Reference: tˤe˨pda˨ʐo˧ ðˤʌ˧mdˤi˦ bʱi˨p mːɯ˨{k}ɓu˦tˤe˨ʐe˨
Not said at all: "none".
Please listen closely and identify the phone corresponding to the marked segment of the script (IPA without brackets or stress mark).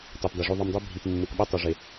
k